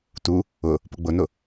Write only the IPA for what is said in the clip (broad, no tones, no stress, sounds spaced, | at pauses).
t u | ʊ | p ʊ ɡ͡b ʊ n ʊ